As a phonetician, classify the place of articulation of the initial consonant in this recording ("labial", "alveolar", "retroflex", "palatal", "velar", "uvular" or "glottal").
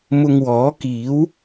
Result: labial